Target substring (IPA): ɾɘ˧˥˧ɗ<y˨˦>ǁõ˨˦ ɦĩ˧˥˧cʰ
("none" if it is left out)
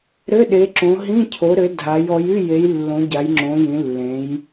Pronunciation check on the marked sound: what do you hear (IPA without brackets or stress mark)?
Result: e˨˦